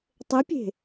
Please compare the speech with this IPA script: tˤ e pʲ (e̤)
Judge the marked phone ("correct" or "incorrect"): correct